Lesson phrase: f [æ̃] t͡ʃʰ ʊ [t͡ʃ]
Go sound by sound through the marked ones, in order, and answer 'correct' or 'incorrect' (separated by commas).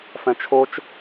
incorrect, correct